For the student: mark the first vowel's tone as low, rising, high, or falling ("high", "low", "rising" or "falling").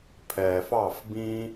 low